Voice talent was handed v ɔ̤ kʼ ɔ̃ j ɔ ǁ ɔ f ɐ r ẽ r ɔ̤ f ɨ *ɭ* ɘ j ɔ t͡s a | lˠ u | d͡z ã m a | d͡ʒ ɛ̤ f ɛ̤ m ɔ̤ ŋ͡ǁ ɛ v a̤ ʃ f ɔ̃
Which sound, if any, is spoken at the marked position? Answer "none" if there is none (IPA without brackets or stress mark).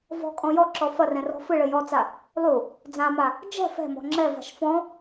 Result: ɭ